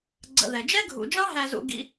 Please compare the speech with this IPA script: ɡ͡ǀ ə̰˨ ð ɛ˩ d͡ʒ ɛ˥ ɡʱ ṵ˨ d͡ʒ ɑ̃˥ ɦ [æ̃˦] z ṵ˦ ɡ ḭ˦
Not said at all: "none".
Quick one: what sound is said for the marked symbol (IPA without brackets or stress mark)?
æ˦